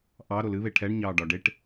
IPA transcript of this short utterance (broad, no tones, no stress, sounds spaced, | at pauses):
ʔ ɑ ɾ o l ɨ β e ʈʰ ɛ ɳ ɲ ɑː ɖ ɒ ɖ e ʈ